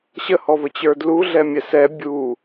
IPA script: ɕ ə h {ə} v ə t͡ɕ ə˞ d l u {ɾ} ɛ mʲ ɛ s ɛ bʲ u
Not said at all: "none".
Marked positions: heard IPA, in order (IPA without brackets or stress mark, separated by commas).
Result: ɔ, ɮ